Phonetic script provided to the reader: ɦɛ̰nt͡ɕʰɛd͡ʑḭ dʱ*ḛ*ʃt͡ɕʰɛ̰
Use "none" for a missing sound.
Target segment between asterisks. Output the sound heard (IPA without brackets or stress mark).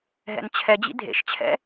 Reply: ḛ